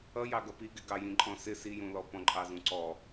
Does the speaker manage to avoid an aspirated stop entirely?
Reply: yes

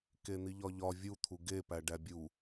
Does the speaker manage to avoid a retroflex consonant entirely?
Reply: no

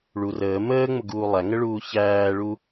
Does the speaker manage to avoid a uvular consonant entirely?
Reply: yes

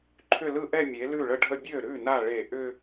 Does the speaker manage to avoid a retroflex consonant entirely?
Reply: no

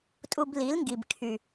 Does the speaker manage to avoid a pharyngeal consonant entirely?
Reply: yes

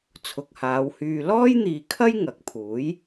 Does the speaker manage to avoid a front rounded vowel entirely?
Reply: no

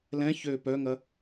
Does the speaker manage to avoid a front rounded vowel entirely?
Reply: no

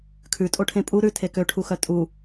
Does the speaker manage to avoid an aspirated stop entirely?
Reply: no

